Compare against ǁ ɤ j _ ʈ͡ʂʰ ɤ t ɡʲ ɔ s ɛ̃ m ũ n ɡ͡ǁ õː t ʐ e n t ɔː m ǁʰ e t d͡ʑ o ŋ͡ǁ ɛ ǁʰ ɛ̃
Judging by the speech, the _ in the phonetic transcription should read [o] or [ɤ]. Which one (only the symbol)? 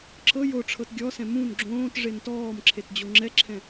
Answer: o